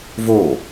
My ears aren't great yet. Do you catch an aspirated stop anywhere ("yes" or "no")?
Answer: no